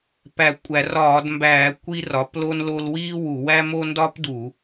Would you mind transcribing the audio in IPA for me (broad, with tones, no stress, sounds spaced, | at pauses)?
p æ˧˩˧ kʷʼ æ˧˩˧ r ɒː˧˩˧ d m b æː˧˩˧ kʷ i˥ r ɒ˩˥ p l o˥ n l o˥ l w iː˥ w u˧˩˧ w æ˥ m o˥ n d ɒː˥ p d u˧˩˧